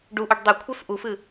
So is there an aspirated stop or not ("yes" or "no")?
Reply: yes